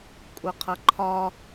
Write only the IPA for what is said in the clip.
kʷʼʌqʰʌǃʰɒ

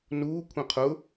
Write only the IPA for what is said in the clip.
nuː kʷʰĩqʰʊ

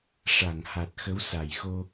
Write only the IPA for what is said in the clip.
ʂa˨˩˨ŋha˨˩t̚xə˧˥w sa˨˩jxo˧

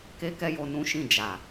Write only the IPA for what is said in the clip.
ke˦kɛ˦jo˧ nũ˦ʃĩ˦˨ d͡ʒa˨

